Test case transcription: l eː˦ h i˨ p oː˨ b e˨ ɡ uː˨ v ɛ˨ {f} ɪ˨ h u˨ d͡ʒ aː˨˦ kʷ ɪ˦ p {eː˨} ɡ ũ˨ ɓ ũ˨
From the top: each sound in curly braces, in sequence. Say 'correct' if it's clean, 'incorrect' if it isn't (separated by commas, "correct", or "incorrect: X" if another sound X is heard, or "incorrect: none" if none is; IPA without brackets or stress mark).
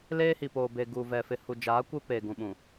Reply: correct, correct